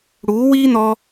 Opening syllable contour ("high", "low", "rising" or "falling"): rising